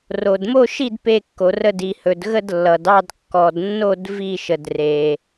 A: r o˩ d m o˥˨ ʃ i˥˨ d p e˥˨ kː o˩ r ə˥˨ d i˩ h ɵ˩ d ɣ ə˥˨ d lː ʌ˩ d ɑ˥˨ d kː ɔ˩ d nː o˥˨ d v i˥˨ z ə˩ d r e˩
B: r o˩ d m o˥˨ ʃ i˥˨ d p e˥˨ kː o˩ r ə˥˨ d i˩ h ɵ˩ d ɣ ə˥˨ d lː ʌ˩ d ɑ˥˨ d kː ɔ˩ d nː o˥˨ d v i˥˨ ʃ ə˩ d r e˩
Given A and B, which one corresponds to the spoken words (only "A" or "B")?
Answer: B